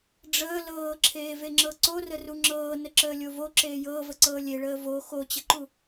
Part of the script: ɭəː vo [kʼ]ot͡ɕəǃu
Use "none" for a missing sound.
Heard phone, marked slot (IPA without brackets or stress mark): x